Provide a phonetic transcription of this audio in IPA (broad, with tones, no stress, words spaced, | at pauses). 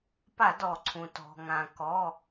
pa˧˩˧dɔ˩ǀʰũ˩ tɔ̤˩ŋã˩ kɔ˩˧˩